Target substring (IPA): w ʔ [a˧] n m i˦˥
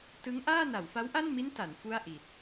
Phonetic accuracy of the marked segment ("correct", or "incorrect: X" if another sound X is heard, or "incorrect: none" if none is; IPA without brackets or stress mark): incorrect: a˥˩